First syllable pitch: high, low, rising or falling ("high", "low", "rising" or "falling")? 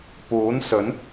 rising